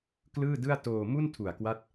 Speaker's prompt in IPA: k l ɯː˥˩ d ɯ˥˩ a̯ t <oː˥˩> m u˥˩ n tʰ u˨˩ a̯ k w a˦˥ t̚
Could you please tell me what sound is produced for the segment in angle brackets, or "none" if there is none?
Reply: oː˧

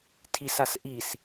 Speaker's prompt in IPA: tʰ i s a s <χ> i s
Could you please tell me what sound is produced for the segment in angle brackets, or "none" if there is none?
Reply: ʔ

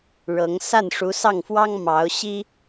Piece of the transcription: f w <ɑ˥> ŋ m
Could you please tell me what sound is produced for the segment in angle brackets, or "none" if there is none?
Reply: ɑ˥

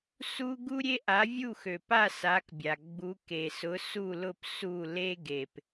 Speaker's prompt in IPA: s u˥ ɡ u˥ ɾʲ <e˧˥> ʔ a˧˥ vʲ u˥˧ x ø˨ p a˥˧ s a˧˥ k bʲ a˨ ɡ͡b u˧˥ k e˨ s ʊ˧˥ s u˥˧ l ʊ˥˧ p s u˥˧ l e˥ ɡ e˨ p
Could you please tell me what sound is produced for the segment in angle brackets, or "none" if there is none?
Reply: e˥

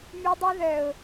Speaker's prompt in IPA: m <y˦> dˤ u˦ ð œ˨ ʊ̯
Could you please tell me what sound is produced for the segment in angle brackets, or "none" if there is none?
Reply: y˦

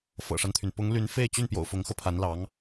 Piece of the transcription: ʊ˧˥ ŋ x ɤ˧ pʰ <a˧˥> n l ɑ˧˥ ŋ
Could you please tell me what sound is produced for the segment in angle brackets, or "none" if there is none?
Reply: a˧˥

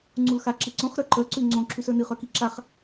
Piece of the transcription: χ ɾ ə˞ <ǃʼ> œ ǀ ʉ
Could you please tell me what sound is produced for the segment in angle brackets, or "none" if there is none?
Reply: ǃ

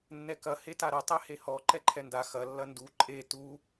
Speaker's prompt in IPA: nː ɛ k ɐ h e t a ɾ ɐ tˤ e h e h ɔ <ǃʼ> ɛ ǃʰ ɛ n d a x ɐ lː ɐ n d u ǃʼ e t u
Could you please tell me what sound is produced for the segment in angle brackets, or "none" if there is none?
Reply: ǃ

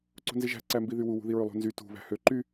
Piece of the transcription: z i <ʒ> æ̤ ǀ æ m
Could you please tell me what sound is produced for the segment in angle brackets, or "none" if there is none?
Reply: ʒ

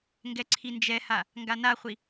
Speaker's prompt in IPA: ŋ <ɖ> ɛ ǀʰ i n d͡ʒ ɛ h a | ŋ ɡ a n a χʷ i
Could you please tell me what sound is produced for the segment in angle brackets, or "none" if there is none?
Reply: ɡ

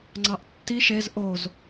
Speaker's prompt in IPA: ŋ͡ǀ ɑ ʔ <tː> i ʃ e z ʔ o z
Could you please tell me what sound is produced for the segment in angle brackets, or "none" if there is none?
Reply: tː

